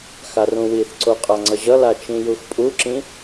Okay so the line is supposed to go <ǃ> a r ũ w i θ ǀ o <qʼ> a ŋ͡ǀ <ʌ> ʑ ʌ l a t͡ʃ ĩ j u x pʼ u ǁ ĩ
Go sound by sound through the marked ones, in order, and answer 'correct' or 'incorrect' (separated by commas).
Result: incorrect, correct, correct